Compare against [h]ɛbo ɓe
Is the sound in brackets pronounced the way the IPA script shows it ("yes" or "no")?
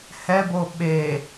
yes